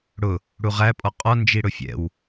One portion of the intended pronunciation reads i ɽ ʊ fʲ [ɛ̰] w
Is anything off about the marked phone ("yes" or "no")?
no